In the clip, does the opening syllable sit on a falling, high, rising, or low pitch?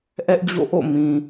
high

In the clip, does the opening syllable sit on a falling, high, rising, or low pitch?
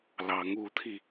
rising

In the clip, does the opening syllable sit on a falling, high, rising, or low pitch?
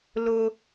high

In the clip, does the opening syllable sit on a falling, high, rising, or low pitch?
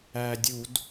low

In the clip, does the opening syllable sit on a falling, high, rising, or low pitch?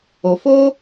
low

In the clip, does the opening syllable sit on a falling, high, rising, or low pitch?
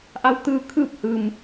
rising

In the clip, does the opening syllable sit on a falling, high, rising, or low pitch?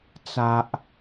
low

